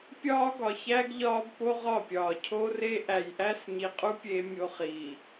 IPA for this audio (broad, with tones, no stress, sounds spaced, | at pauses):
pʲ ɒː˦ ɡ ɒ˨ ç æ˦ ɡ ʎ ɒː˦ b p o˦ ʁ ɒ˦˨ pʲ ɒː˨ cʰ o˦ r e˦ ʔ æ˨ j ʔ æ˦ s ɲ i˨ qʼ u˦ pʲ e˦ mʲ o˦ χ iː˨